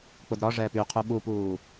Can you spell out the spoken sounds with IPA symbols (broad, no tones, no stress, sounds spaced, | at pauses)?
k͡p ʊ d ɾ ɒ ʐ ɛː p y qʰ u ɓ u p uː